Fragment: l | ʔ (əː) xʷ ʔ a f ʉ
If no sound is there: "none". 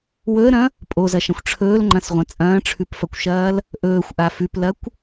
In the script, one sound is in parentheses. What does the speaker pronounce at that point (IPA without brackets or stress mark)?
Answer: ɵː